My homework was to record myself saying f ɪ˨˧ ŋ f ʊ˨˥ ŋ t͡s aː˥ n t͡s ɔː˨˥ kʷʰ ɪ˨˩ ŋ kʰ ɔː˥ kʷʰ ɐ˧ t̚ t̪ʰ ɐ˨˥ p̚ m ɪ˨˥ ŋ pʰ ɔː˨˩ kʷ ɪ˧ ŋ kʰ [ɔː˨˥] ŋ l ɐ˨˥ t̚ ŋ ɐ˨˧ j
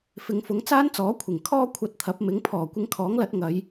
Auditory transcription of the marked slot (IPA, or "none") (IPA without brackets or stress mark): ɔː˨˥